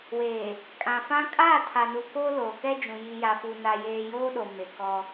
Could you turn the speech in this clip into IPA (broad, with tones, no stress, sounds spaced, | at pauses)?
w eː˨ | kʼ ã˨ f ã˦ kʼ aː˦˨ tʰ a˨ n u˨ k oː˦ l oː˨ k ɛ˦ d͡ʒ ũ˨ j i˨ j a˨ f u˨ n a˨ j eː˨ j oː˦ ɗ o˨ m e˨ k ɔ˦